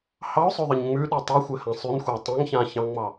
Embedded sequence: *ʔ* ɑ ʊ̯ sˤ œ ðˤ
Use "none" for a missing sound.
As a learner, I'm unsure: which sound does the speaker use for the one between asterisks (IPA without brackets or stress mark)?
h